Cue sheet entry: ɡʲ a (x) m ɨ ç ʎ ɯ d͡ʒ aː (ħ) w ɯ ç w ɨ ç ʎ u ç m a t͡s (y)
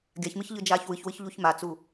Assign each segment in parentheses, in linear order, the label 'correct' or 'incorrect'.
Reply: incorrect, incorrect, incorrect

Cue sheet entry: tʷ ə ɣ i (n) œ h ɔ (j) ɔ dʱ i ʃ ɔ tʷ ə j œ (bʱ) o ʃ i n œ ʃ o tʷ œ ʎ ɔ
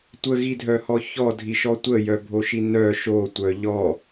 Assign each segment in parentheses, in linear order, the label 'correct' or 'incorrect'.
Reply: incorrect, incorrect, correct

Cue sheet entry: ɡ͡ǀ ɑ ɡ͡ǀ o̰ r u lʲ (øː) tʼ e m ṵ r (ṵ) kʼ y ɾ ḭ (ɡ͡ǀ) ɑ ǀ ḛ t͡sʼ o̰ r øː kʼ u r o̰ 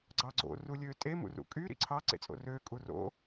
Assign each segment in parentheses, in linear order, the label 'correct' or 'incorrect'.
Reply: correct, correct, incorrect

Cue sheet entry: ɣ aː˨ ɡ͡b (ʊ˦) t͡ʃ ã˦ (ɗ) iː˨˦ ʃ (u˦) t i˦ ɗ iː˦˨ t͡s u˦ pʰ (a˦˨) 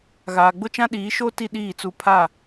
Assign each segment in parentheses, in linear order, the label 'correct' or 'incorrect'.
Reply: correct, correct, incorrect, correct

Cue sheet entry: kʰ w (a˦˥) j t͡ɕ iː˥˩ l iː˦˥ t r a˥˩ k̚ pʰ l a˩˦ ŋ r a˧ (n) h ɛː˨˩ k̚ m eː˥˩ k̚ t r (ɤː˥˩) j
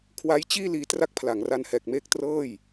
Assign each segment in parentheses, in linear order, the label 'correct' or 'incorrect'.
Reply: correct, correct, correct

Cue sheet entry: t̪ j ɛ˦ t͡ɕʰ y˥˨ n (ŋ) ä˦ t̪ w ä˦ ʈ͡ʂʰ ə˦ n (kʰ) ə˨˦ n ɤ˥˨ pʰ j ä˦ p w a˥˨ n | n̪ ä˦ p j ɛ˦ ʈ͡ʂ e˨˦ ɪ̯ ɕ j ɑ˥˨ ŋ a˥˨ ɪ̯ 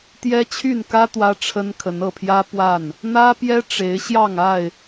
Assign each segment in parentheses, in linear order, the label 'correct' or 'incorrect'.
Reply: incorrect, correct

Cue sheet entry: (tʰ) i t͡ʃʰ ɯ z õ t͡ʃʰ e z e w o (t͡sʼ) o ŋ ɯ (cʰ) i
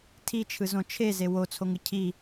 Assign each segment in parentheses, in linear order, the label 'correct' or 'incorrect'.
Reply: correct, incorrect, correct

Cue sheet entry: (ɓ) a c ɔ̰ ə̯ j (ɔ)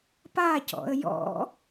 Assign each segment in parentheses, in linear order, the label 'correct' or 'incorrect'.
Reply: incorrect, incorrect

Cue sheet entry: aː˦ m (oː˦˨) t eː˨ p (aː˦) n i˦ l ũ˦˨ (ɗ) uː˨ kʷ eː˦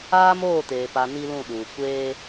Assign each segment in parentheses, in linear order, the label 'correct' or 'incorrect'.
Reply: correct, incorrect, correct

